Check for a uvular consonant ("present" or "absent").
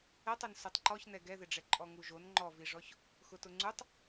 absent